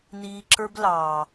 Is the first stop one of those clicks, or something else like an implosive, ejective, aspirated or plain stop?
click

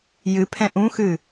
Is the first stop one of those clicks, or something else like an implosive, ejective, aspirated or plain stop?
aspirated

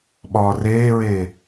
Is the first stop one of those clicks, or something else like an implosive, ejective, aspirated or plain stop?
implosive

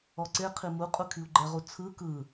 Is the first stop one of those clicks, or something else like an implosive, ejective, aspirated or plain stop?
click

